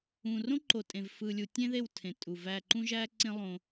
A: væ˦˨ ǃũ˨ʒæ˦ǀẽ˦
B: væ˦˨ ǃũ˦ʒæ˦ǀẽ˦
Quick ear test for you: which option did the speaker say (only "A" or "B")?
B